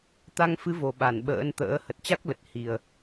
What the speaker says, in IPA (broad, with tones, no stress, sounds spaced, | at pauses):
t̪ a˧ ŋ f ɨ˨˦ v o˨˩ ɓ a˧˩ n ɓ ə̰ː˧˥ n t̪ ə̰ː˧˥ h ə˨˩ t̚ t͡ɕ a˦˥ k̚ l ə˨˩ t̚ h i˨˩ ə̯